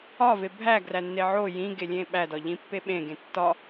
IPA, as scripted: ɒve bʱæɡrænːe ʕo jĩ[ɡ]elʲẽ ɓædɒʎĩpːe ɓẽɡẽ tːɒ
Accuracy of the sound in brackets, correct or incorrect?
correct